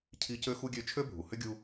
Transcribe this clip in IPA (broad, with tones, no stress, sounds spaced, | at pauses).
cʰ i˦ c ø˥ x u˥ ɡʲ ø˦ t͡ʃʰ ø˦ bʱ u˩ h ʏ˦ ɡʲ u˦